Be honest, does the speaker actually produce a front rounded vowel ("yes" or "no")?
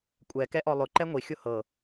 no